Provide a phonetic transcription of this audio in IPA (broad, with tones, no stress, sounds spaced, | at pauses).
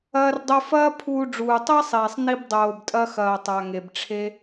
ɐː˧ r dˤ ɵ˧ f ɐː˥ pʰ uː˧ ɖ͡ʐ uː˩ tˤ e˥ sˤ iː˩ sˤ n i˧ b dˤ oː˩ b tʼ ɐ˧ x ɐː˩ tˤ a˩ ŋ e˩ b ʈ͡ʂʰ e˧